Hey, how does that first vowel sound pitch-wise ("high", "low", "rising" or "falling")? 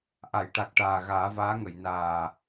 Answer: low